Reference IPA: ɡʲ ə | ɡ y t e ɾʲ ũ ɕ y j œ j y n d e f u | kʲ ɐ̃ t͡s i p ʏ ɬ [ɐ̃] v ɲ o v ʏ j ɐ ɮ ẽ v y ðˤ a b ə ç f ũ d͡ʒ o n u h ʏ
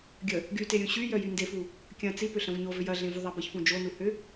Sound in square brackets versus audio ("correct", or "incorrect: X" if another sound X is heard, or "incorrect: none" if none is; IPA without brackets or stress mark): correct